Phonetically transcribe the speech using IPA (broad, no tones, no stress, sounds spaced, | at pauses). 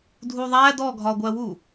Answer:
dʱ u ðˤ æ d ɔ ɡʱ ɒ ɡʷ æ w u